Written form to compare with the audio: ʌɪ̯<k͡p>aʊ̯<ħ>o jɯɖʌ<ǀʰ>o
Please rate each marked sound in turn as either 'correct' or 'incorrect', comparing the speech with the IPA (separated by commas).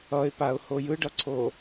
incorrect, incorrect, correct